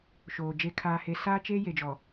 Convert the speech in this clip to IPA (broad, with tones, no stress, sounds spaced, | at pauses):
ʃ oː˨ d͡ʒ e˨ kʰ aː˨ h e˨ s aː˦ t͡ʃ eː˦ j e˨ d͡ʒ ɔ˨